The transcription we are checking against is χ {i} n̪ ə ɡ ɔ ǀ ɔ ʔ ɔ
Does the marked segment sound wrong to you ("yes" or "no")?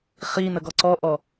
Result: no